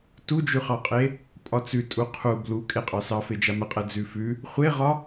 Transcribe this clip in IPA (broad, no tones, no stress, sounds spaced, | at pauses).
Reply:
t u d͡ʒ ʉ χ ɑ qʼ e | pʼ ɒ t͡s ʉ tʼ u qʰ u b l u kʼ e qʼ ɑ s ɑ f e d͡ʒ a m ə qʼ ɛ d͡z ʉ f ʉ | χʷ e ʁ ɒ